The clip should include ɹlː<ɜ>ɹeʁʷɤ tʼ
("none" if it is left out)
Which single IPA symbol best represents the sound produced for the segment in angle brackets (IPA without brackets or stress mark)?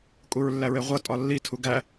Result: æ